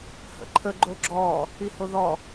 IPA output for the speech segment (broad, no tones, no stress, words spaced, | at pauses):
hə̰ǃʰə ɡ͡ǃoɡ͡ǁɔ | ihoðɔ